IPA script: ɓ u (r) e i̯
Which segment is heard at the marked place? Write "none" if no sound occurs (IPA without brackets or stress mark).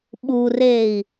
r